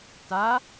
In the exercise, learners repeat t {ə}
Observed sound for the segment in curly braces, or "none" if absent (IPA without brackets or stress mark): a